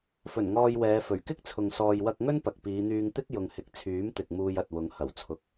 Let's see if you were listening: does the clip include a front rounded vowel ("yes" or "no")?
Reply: yes